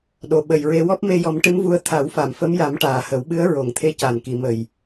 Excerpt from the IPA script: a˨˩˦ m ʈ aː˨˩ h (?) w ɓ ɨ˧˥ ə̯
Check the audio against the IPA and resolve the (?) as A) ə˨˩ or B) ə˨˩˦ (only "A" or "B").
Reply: B